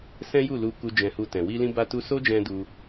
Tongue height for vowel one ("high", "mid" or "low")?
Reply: mid